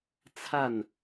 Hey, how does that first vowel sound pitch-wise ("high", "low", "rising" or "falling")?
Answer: falling